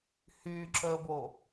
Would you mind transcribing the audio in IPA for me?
h y ǁ əː b o

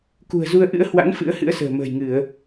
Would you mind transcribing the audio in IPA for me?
k ṳ˨˩ ə̯ z u˧ ə̯ ʔ ɨ̰˧˥ ə̯ h w a̰˧˥ n f ɨ̰˧˥ ə̯ h ɨ̰˧˥ ə̯ s ə̤ː˨˩ m ə̤ː˨˩ j ŋ ɨ˧˩˨ ə̯

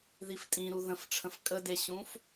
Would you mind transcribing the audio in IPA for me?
ð i f tʼ ĩ ɾ u ð ə̃ f ʈ͡ʂʰ ə̃ f kʼ ə d e ɕ ũ f

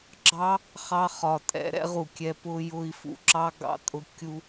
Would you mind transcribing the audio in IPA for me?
ɡ͡ǁ ɑ˦ | χ ɑ˦ χ ɒ˨ tʼ ɛ̰˧ ɾ ɛ̰˦ ʁ u˨ kʲ ɛ˧ p ʊ˧ j ʊ˧ i̯ f ṵ˧ ǁ ɑ˦ ɡ ɑ̰˧ tʼ ʊ˧ kʲ u˧

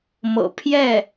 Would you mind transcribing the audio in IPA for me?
m ɤ̰˨˩ pʰ j ɛ˥˩

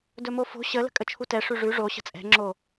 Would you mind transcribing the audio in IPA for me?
d ɵ m o f o̤ ɕ ə l ə̤ kʼ ə t͡ʃʰ u t ɛ ʂ ʉ ʐ ʉ ʐ o ɕ ə̤ t͡sʼ ɛ̤ ŋ͡ǁ o

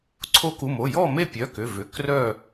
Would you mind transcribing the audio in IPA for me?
ǀʰ o˧˥ k u˩˧˩ m o˩˧˩ j ɔ˥˨ m e˥˨ pʲ œ˩˧˩ k ʏ˩˧˩ v ʏ˩˧˩ k r œ˥˨

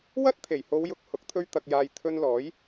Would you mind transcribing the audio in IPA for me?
w ɐ˥ t̚ t̪ʰ e˨˩ j h o˨˧ w j ʊ˨ k̚ h ʊ˨˥ k̚ t̪ʰ ɵ˥ ɥ t̪ ɐ˧ k̚ j aː˧ j t̪ʰ ɵ˧ n l ɔː˨˥ j

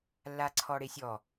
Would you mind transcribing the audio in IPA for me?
lː a ǀʰ ɔ ɽ e sʲ ɔ

